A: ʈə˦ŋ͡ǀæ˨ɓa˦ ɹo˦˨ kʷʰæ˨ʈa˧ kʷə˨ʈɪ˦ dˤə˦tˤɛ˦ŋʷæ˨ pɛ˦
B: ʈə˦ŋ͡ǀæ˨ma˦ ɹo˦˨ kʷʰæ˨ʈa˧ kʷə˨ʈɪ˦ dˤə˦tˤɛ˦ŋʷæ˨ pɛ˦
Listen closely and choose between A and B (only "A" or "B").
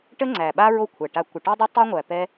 A